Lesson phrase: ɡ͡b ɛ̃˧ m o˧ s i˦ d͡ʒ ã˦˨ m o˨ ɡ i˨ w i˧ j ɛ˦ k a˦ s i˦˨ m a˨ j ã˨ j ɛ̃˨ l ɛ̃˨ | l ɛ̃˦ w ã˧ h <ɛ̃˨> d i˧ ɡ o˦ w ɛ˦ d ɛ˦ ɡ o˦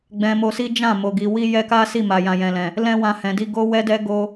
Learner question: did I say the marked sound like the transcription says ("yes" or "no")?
yes